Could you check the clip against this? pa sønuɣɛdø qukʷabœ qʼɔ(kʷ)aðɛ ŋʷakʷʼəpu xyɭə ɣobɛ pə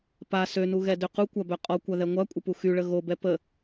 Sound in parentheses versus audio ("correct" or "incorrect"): correct